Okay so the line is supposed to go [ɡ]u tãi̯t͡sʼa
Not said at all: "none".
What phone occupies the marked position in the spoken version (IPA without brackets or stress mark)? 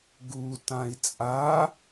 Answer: ɡ